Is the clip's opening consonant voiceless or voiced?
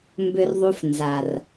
voiced